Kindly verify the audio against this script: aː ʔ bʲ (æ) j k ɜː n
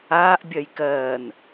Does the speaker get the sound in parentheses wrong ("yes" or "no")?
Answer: yes